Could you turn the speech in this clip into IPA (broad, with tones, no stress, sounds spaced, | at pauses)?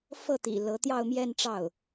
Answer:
f ɤ˥˩ t̪ ḭ˨˩ l ɤ˧˥ t̪ j ɑ˥˧ ʊ̯ m j ɛ˥˧ n ʈ͡ʂ ɑ˥˩ ʊ̯